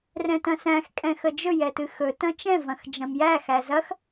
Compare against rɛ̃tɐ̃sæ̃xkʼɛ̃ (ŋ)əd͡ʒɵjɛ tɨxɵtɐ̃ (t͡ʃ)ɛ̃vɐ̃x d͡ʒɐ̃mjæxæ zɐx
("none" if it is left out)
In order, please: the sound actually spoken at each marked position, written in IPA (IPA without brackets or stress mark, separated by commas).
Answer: x, t͡ʃ